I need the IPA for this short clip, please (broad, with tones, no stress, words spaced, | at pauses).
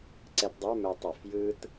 ǀɛ˧tdˤə˞˧˥˧ mɛ˧ tˤɜ˧˩˧f jɯ˥t